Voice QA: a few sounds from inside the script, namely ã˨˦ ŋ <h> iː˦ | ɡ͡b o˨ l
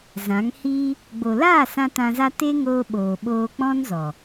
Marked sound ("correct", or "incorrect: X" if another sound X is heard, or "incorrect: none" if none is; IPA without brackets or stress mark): correct